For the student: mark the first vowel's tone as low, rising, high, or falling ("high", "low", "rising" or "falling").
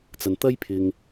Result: low